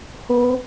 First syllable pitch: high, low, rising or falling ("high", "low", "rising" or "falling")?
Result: high